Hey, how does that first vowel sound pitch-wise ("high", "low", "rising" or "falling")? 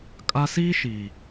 high